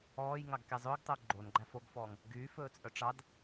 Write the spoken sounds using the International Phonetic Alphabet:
ɔː j ŋ ɑ ɡ k ɛ zˤ ɵː ɡ tˤ ɵː ɡ͡ǃ o n ɡ͡ǃ æ f o ɡ f ɔː ŋ | ɡ yː f ɵː t͡sʼ œ ʈ͡ʂ ɑ d

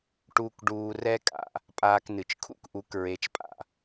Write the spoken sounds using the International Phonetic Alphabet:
ʈ uː˧ k ɖ uː˧ r ɛ˧ kʼ a̰˨ | pʼ aː˧ k n ɨ˨ t͡ʃ kʰ ṵ˦ k ʔ u˨˦ k ɹ e˧ t͡ʃ pʼ a̰˦˨

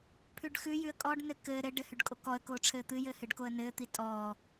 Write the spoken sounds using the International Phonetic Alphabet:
pʰ ʉ ɖ x ʉ j ʉ ə̯ kʼ ɔ ɖ n ɘ k ɘː ɾ ɘ ɖ ɘ h ʉ ɖ kʼ o k ɔ ə̯ k oː ʈ͡ʂʰ ɘː t̪ ɨ j ɘ h ɨ ɖ k o ə̯ n ɘː t̪ i tʼ ɔː

